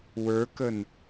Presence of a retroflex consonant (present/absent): absent